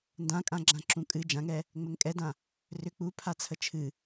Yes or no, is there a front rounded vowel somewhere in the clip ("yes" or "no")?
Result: yes